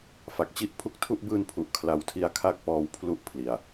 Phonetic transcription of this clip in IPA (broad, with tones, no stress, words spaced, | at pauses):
fa˨˩k̚t͡ɕi˥˩ʔ pʰu˦˥k̚tʰu˥˩ʔ bɯː˧npʰu˨˩ʔ kʰla˨˩wtʰi˧a̯ kʰa˥˩k̚pɔː˧w pʰlu˥˩ʔpʰli˨˩a̯